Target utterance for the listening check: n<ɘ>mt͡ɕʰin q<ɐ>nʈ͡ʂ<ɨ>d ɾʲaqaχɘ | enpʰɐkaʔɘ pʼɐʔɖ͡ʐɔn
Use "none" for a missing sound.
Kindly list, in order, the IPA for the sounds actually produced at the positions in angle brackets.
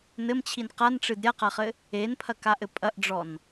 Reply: ɘ, a, ɨ

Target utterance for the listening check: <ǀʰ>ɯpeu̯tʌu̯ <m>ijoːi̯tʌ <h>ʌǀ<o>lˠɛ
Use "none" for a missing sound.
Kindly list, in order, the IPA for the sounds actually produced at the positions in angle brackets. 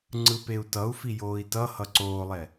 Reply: ŋ͡ǀ, f, h, oː

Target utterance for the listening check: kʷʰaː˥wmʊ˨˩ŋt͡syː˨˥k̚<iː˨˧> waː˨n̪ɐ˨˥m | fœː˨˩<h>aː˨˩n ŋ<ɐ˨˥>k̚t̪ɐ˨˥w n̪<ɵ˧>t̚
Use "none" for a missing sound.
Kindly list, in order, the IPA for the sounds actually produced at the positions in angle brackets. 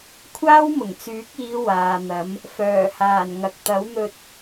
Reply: iː˨˧, h, ɐ˨, ɵ˧

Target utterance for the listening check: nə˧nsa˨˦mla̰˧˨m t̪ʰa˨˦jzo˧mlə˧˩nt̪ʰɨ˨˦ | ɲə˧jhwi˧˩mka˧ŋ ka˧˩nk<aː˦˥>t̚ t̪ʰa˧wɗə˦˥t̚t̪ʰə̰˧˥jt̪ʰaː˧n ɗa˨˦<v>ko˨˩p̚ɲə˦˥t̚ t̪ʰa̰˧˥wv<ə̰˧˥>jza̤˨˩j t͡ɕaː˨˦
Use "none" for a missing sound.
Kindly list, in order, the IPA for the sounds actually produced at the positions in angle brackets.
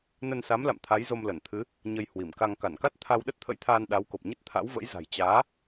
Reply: a˦˥, w, ə̰˧˥

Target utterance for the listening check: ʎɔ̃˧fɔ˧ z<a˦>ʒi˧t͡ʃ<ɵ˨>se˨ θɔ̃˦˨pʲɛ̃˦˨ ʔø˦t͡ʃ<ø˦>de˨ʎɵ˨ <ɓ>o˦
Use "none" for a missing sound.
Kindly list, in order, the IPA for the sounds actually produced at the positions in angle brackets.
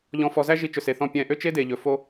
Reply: æ˦, ɵ˨, e˦, f

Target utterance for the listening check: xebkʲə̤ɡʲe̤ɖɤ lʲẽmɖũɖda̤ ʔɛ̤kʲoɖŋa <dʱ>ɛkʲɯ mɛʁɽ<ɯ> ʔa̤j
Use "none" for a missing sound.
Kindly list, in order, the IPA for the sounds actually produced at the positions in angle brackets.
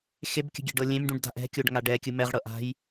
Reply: ɖ, ɤ

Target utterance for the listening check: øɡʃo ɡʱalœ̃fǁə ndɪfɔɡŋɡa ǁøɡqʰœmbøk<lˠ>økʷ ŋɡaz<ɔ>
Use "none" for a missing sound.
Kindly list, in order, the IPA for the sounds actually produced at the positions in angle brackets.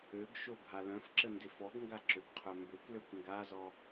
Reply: l, ɔ

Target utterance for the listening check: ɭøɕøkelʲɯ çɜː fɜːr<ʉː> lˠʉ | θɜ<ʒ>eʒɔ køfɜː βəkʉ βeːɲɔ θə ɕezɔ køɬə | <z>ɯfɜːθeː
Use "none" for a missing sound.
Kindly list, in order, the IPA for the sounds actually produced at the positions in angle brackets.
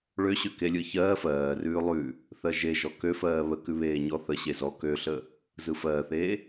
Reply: ʉː, ʒ, z

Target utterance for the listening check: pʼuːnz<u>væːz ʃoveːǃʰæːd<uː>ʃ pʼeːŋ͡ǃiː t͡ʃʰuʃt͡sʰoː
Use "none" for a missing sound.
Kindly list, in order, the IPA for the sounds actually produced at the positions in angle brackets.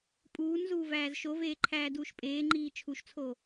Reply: uː, uː

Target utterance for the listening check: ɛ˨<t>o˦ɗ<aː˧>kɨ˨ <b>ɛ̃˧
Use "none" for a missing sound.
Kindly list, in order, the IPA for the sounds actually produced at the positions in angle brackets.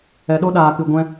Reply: ɗ, aː˨, ɡʷ

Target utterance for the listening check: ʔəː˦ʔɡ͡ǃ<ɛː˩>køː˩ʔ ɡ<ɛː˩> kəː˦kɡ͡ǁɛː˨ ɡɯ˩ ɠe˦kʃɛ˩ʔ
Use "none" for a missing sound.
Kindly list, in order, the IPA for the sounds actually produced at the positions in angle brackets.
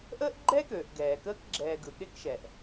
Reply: ɛː˦, ɛː˩

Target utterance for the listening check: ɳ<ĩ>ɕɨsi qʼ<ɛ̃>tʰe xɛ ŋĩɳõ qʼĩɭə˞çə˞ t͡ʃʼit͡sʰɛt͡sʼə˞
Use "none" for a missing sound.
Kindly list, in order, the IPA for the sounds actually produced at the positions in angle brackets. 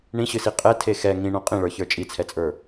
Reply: ĩ, ɛ

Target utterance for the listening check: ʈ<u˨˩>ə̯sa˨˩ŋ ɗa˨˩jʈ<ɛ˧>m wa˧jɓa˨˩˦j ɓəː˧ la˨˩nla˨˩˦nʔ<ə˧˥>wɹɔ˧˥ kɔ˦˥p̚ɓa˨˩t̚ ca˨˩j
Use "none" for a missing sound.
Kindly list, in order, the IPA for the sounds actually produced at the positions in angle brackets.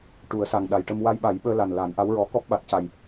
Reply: u˨˩˦, ə˧, a˧˥

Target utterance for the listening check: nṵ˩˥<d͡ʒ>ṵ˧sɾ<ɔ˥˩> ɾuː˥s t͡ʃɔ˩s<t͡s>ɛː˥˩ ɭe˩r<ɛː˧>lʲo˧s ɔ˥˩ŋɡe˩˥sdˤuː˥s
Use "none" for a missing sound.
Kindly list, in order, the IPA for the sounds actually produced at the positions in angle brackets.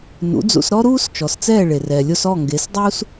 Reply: d͡z, ɔ˥, t͡s, ɛː˩

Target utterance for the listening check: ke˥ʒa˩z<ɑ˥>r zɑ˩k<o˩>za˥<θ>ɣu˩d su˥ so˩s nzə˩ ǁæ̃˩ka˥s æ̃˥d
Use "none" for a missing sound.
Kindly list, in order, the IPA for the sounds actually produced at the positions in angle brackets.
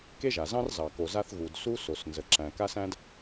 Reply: ɑ̃˥, o˩, θ

